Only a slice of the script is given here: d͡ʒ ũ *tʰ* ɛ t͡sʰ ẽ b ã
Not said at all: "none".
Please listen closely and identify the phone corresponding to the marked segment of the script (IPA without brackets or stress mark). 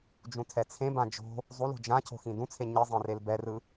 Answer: tʰ